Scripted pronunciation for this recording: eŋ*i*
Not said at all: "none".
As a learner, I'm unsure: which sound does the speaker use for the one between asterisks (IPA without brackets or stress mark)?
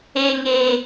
e